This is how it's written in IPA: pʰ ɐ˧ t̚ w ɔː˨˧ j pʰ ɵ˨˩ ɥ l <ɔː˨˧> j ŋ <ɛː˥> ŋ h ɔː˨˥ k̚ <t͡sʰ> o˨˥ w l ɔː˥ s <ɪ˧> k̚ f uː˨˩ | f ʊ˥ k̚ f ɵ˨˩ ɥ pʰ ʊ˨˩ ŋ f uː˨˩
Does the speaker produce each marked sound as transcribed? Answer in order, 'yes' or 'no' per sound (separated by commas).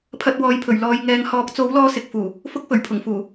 yes, no, no, yes